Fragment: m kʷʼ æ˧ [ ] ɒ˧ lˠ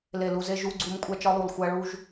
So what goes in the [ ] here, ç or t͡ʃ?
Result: t͡ʃ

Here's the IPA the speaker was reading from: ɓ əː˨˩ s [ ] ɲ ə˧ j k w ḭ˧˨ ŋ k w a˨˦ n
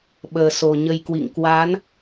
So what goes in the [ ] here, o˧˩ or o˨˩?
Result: o˨˩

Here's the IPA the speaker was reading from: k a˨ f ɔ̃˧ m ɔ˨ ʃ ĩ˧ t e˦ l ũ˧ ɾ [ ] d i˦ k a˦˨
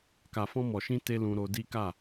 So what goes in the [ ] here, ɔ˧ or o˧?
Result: o˧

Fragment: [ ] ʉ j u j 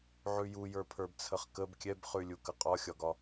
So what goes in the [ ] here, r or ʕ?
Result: ʕ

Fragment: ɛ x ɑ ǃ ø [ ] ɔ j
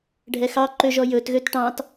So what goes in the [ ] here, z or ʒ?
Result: ʒ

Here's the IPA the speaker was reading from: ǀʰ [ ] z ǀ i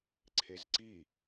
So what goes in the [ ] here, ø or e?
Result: e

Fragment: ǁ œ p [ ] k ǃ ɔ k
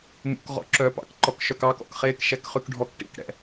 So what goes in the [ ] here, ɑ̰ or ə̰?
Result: ɑ̰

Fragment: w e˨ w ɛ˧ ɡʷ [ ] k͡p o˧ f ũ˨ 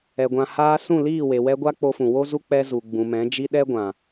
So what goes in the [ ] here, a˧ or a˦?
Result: a˦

